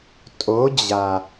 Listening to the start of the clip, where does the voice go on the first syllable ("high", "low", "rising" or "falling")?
rising